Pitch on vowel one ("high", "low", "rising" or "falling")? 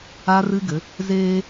high